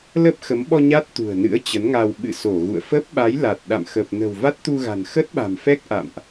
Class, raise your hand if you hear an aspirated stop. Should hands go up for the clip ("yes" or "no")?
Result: no